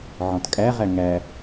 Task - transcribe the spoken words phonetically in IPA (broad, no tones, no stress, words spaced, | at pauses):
ʕɔ̃tkʼæʁæ ŋæ